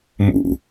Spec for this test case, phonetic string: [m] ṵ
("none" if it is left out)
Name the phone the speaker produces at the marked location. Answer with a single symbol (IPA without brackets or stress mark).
m